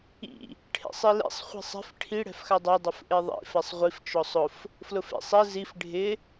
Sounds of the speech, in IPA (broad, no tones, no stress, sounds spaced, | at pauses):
ḭ | ʈʰ ḛ sˤ i l ḛ sˤ χʷ e̤ sˤ ɛ̤ f ʈʰ i ɽ ɛ̤ f x a dˤ a dˤ ʊ f ʔ e ðˤ ḭ f ɛ sˤ ʁʷ i f t͡ʃ ɔ sˤ ʊ f | f l ʊ f ḛ sˤ ɛ z i f ɖʱ ɪ